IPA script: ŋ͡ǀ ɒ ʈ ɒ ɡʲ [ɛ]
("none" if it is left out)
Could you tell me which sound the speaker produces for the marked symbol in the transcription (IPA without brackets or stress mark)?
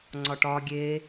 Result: e